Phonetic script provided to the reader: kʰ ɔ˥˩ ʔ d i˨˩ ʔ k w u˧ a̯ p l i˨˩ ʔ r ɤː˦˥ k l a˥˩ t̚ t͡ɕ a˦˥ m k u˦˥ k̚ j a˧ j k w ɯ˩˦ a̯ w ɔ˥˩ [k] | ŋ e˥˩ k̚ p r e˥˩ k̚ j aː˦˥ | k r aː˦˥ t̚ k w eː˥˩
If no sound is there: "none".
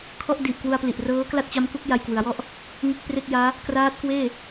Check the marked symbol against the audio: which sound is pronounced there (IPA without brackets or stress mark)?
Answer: ʔ